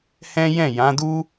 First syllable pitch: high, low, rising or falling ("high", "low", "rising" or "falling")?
high